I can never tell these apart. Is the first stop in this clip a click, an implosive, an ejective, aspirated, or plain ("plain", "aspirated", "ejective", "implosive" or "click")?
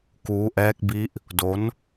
plain